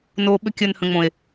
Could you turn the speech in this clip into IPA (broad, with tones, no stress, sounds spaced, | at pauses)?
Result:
n oː˧ ɓ ʏ˧ kʲ əː˨ n h ə̃˨ ŋ͡m õ˨ e̯